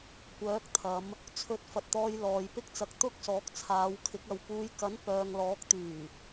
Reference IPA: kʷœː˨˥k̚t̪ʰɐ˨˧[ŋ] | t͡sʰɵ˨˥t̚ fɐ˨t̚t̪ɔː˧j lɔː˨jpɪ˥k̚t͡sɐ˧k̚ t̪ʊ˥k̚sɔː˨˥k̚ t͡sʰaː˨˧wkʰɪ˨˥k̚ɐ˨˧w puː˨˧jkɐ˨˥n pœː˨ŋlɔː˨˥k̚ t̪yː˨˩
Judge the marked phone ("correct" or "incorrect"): incorrect